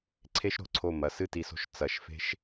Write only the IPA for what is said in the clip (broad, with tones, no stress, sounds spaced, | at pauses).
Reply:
ǀʰ e˥ ʃ ɾ o̤˧ ǀʰ o˧˩ m ɐ˩˧ s ɨ˥˧ t i˧ s o̤˧ ʃ t͡s ɐ˩˧ ʃ f e̤˥ ʃ